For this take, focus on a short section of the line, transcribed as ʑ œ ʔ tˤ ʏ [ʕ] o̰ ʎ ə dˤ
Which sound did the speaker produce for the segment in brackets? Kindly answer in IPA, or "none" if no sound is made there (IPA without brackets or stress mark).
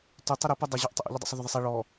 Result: ʔ